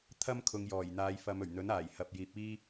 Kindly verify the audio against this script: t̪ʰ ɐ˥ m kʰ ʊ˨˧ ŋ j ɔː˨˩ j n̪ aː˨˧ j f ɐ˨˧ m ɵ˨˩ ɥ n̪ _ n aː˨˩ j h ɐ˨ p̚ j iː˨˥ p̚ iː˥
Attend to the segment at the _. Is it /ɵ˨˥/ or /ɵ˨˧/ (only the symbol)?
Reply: ɵ˨˥